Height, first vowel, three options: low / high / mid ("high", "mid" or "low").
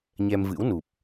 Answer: mid